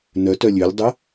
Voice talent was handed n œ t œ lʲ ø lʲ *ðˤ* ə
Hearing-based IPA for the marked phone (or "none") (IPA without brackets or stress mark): dˤ